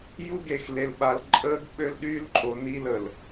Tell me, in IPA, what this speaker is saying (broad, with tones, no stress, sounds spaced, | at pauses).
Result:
j u˦ ɡ e˨ x l e˨ l ɓ a˨ l ǃʼ əː˦ ɡ ɓ ø˦ l ɗ y˦ l ǃʼ o˨ n i˦ l ə˨ l